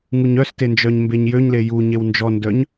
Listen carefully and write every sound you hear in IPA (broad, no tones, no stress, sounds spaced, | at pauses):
ŋ u ɲ œ s t e n d͡ʒ œ ɲ m b e ɲ j ø ɲ l e j u ɲ e w n d͡ʒ ɔ n d œ ɲ